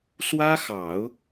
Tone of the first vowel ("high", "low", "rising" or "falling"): high